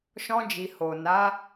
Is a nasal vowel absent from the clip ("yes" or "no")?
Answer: no